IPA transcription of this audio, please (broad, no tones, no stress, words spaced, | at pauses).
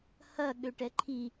hɐ ɠøʈɛǃʰi